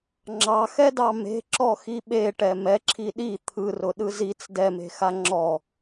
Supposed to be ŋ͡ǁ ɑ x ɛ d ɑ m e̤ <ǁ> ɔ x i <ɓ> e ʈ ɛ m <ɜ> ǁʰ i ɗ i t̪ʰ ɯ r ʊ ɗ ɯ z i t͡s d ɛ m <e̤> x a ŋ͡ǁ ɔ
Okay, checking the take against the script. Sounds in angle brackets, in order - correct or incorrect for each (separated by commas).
correct, correct, incorrect, correct